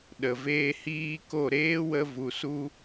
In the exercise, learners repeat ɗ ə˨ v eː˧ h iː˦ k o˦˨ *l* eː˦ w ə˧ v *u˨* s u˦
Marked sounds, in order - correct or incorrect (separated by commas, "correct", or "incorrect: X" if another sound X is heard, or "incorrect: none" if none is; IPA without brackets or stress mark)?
incorrect: ɾ, correct